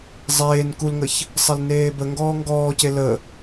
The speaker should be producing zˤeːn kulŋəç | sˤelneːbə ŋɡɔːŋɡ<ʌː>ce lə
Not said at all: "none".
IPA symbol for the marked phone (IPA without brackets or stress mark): ɔː